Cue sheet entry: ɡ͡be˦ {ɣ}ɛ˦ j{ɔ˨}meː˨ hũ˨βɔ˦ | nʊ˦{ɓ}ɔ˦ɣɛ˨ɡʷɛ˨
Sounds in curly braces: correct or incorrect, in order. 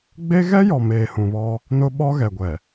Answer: correct, correct, correct

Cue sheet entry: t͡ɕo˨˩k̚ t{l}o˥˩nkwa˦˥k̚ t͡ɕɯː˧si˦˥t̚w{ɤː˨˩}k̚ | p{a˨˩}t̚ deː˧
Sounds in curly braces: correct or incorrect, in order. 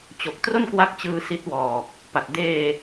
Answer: incorrect, incorrect, correct

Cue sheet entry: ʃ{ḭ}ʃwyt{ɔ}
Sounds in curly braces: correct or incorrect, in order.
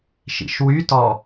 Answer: correct, correct

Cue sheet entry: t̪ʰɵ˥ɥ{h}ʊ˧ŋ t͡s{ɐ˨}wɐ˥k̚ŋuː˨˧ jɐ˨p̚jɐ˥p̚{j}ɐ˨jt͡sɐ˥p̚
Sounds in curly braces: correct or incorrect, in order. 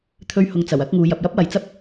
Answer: correct, incorrect, incorrect

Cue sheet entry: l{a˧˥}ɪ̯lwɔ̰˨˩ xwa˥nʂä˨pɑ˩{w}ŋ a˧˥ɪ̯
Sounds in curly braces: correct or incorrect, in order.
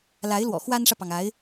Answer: correct, incorrect

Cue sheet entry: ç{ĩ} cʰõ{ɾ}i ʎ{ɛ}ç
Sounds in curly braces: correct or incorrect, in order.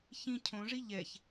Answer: correct, incorrect, correct

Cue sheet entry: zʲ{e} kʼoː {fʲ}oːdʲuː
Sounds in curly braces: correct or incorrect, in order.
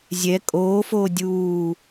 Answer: incorrect, incorrect

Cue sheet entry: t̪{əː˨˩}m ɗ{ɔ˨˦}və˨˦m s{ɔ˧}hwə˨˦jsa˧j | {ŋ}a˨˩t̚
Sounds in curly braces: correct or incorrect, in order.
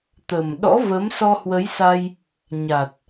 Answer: incorrect, incorrect, correct, incorrect

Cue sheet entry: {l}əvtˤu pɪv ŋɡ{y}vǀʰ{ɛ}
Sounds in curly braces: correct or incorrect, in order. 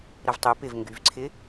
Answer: incorrect, correct, incorrect

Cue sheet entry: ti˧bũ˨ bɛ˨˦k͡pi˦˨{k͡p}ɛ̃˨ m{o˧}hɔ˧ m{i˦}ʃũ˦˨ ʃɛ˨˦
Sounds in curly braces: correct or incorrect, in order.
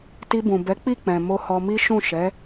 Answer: correct, correct, correct

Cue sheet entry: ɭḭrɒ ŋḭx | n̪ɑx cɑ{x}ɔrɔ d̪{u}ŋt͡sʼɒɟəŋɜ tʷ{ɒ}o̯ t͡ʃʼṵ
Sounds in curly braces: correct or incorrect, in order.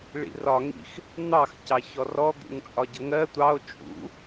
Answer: incorrect, incorrect, incorrect

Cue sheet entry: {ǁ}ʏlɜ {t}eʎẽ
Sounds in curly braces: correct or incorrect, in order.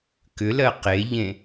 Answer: incorrect, incorrect

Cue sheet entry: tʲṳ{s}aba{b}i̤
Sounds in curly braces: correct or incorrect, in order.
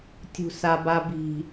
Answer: correct, correct

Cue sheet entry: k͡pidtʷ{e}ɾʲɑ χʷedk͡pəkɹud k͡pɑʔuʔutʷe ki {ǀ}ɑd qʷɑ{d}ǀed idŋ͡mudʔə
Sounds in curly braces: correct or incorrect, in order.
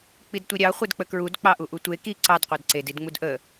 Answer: incorrect, correct, correct

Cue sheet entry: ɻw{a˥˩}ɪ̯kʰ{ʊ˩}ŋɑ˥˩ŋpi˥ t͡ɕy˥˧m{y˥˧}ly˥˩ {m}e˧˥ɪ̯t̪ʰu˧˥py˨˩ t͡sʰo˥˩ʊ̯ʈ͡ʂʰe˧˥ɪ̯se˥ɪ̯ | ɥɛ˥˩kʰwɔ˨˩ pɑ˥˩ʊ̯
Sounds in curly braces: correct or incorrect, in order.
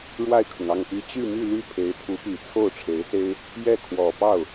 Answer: correct, correct, correct, incorrect

